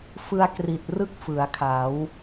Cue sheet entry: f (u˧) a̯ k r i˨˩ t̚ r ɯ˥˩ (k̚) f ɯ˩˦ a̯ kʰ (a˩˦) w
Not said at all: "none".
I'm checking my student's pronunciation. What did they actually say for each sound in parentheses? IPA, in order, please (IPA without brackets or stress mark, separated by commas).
ɯ˧, k̚, a˩˦